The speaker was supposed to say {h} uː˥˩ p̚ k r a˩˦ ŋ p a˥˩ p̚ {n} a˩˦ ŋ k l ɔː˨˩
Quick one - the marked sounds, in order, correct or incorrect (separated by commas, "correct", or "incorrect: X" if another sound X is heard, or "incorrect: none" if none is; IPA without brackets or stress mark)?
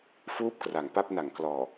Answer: incorrect: f, correct